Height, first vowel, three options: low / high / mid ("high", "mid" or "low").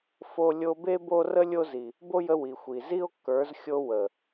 mid